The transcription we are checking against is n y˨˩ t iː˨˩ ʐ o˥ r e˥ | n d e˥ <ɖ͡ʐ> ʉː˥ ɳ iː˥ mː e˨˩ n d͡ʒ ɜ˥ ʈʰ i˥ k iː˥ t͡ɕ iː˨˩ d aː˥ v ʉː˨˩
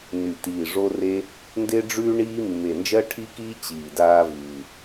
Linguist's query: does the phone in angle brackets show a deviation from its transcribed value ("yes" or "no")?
no